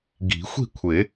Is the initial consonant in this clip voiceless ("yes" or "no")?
no